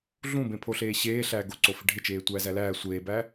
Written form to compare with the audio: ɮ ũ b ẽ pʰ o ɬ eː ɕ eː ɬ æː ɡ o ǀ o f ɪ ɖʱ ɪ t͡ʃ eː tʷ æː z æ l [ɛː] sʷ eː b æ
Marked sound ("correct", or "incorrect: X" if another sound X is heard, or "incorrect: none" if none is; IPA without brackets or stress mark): incorrect: æː